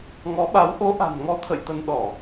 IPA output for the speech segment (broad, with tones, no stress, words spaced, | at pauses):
ŋɔ˨˦ɓa˨˦w ʔo˨˦ ʔa̤˨˩nŋɔ˨˦ t̪ʰə̰˧˨jt̪ə˧n ɗɔ˧˩˨